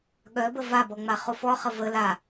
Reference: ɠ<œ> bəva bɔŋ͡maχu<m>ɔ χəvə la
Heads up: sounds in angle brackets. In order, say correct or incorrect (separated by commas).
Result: correct, incorrect